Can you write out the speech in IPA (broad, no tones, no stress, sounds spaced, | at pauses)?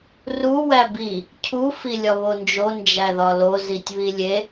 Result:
r u w æ b i | cʰ u f i lʲ ɒ β o n d͡ʒ o n d͡ʒ æ ð ɒ l o z i tʲ β i lʲ e